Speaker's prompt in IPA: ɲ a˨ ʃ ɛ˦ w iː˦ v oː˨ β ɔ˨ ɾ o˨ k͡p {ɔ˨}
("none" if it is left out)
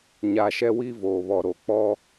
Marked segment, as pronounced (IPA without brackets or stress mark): ɔ˦